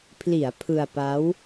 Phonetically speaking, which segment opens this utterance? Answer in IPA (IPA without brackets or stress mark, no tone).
pʰ